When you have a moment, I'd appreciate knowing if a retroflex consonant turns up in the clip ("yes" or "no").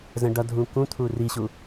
yes